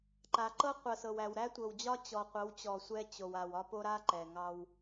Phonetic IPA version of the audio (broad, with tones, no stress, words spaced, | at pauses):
ǃa˨ǃɤ˦ qʷɤ˨sɤ˨wæ˨w ɾæ˦tʷɤ˨wd͡ʑɒ˦ t͡ɕɔ˨qʷɤ˨˦wt͡ɕɔ˨ sʷɛ˦t͡ɕo˨w a˨wɒ˦po˦ ɾa˦ǃɛ˨ ŋɑ˦w